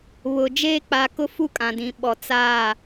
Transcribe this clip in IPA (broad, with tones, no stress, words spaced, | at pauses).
βʊ˨d͡ʒeː˦ k͡pa˨ kʊ˦fu˦kʼã˨dĩ˨ ɓɔ˨t͡saː˦˨